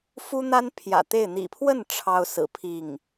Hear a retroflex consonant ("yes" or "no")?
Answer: yes